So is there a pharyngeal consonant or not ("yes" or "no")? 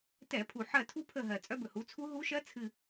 yes